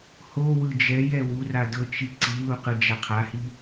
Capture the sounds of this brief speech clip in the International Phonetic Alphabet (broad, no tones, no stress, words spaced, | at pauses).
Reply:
ho wɯd͡ʒɛj ɛwura dɤt͡ʃi ǀiluqɯ d͡ʒaqʰahi